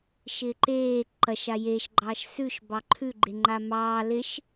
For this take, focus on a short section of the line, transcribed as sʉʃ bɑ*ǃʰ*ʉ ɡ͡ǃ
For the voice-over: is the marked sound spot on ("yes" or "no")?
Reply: yes